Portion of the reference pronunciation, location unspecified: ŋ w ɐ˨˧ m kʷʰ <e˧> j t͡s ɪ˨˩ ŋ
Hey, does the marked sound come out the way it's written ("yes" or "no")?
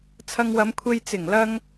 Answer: yes